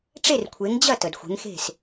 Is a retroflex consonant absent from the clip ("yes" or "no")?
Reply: no